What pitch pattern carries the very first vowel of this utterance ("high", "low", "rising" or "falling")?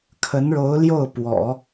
rising